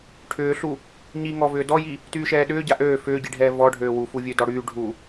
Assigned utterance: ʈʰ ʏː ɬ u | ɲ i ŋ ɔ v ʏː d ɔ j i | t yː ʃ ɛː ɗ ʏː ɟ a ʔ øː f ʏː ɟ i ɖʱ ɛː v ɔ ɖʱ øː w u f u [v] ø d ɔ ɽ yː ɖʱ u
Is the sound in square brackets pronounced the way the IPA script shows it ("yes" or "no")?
no